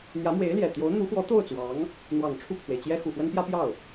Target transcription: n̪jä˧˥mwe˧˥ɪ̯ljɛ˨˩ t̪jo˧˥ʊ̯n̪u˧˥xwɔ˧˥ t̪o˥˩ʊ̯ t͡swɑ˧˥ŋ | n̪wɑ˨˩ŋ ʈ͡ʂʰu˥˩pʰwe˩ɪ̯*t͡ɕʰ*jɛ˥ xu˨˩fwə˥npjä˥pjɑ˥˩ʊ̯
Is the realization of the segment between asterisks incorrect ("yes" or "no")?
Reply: yes